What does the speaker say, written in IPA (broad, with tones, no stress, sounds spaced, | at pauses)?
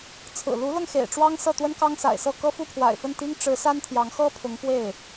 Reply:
t͡sʰ ɹ̩˨˩ l u˧˥ l ɤ˧ ŋ x ḛ˨˩ ɪ̯ ʈ͡ʂ w ɑ˥ ŋ s ɤ˥˩ t̪ w ə˥ n k ɑ˥ ŋ s a̰˨˩ ɪ̯ s ɤ˥˩ k ɤ˥ f u˥˩ pʰ w a̰˨˩ ɪ̯ f ə˥˩ n t̪ i˥ ŋ ʈ͡ʂ ɻ̩˧˥ s a˥ n t̪ʰ j ɑ˧˥ ŋ x ɤ˥ pʰ ʊ˧˥ ŋ p w e˥˩ ɪ̯